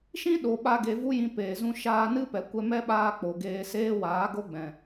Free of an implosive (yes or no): no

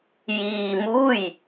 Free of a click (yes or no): yes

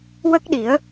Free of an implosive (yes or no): no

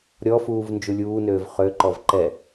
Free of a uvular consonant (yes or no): no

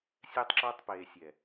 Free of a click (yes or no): no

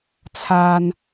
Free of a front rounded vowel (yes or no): yes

